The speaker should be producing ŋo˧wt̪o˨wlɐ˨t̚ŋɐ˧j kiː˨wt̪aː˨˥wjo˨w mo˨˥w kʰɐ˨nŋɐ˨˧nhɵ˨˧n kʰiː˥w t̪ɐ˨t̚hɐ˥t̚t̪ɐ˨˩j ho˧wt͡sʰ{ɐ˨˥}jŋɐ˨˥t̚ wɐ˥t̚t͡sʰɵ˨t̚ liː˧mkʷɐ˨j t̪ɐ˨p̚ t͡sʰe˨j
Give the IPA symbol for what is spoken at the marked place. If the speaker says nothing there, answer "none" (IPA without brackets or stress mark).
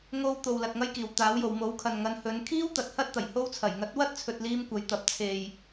ɐ˨˩